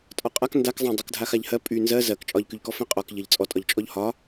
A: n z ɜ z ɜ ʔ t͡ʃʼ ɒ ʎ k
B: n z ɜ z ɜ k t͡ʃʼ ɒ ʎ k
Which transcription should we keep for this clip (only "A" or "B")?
B